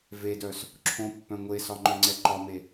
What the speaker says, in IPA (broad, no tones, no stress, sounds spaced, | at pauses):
v e d œ s | ǁʰ õ pː œ̃ ŋʷ e s ɒ ŋ͡ǃ œ ŋ͡ǀ ɛ ǃ ɒ m e